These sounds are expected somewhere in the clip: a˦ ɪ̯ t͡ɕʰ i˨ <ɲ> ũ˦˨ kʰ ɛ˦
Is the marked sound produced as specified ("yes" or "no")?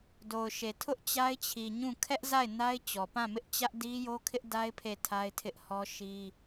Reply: yes